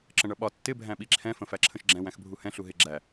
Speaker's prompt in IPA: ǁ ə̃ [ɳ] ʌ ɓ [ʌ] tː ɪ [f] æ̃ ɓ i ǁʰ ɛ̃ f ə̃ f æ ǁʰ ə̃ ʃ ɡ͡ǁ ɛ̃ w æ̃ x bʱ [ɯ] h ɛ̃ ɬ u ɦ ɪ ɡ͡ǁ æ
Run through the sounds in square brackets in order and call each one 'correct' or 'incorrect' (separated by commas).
correct, incorrect, incorrect, incorrect